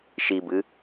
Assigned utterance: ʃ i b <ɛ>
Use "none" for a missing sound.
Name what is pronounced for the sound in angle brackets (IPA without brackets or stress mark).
ɨ